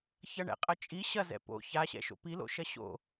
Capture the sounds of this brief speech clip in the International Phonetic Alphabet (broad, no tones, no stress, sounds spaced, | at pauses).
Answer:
ç ɐ ɳ ɛ̰ qʼ ɐ t͡ʃʼ i ɕ ɐ z ɛ̰ p o̰ ç a ɕ ɛ̰ ʃ o̰ p i l o̰ ʃ ɐ ɕ o̰